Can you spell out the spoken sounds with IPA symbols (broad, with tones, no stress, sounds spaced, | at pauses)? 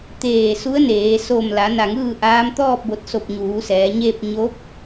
t̪ eː˧˩ s u˧˥ ə̯ n eː˩˧ s o˧˩ m l a˩˧ n a˧˩ ŋ ɯː˥˨ ʔ aː˧˥ m t̪ ɔː˥˨ p̚ b o˧˩ t̚ s o˧˩ p̚ ɲ uː˩˧ s ɛː˩˧ ɲ eː˥˨ p̚ ɲ oː˧˥ p̚